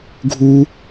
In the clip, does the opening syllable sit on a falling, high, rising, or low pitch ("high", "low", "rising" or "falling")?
high